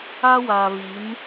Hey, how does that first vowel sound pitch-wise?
high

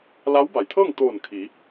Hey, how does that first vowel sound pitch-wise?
rising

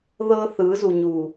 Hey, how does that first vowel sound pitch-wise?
high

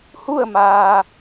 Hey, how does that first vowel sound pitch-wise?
falling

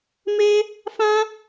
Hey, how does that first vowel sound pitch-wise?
high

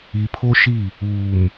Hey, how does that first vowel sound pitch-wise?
low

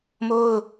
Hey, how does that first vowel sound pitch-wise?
high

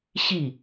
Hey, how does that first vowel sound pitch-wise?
falling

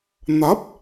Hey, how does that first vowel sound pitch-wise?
rising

